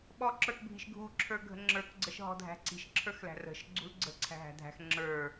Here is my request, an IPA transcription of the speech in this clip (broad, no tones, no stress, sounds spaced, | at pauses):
ɓ ɔ ǁ ə˞ k bʱ i̤ ʃ ɡʱ u ǁʰ ə˞ ɡʱ ə̤ ŋ͡ǁ ə˞ k ɡ͡ǀ ə ʃ ɦ ɔ̤ dʱ æ̤ ǀ i̤ ʃ ǁʰ ə˞ x l æ̤ r ə̤ ʃ ɡ͡ǀ ṳ l ɡ͡ǀ ə̤ ǀʰ æ̤ ɦ æ̤ dʱ æ̤ x ŋ͡ǁ ə˞